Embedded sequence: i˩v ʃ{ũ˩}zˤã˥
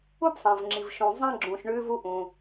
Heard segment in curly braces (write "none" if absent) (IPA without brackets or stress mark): ũ˩